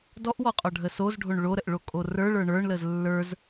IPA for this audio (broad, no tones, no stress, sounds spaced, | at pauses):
d ɔ ʔ w ɔ qʼ ɔ ɖʱ ə s o z ɖʱ o ɳ ɭ o ɾ ə ʔ ɭ o kʼ o r ə˞ ɭ ə˞ ɳ ə˞ ɳ l ə z lː ə˞ z